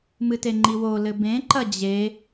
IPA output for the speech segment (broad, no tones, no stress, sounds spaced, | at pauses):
m ɨ t e ŋ͡ǃ i w o l ɘ b ẽ ǃ ɐ d͡ʑ e